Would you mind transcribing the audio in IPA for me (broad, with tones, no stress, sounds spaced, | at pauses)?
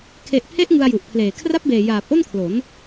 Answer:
kʰ e˨˩ ʔ pʰ e˦˥ ʔ ŋ ɯ˧ a̯ j u˨˩ ʔ pʰ l eː˨˩ kʰ r a˦˥ p̚ b eː˨˩ j aː˨˩ p̚ ʔ o˥˩ n kʰ l o˩˦ n